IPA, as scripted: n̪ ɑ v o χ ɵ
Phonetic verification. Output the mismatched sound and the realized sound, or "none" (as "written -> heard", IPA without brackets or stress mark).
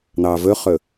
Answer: o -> ɵ